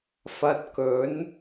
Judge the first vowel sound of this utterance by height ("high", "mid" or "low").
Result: low